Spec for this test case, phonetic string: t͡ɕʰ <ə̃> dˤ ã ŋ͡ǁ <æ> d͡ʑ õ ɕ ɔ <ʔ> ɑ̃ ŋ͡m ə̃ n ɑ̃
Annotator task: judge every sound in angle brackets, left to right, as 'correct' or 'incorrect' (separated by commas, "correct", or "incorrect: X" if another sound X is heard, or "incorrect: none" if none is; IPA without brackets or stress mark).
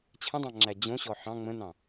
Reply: correct, correct, incorrect: ħ